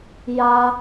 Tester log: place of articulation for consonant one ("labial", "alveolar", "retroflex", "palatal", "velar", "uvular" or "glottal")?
palatal